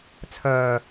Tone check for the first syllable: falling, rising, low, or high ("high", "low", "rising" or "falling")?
low